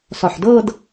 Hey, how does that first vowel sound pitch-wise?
low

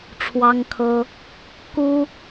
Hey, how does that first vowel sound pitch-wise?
high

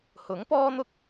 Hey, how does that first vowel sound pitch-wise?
rising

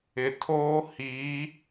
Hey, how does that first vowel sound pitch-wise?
low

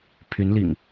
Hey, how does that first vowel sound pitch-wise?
rising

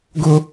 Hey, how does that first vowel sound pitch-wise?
high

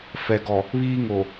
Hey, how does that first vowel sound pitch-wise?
low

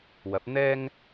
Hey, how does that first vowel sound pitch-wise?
rising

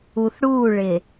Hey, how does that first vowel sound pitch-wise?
low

